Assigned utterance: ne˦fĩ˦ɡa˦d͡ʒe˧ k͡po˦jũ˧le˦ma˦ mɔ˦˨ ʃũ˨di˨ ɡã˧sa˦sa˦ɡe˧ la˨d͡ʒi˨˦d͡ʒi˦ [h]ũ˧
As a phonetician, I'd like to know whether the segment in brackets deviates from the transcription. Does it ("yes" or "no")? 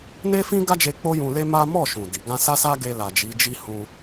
no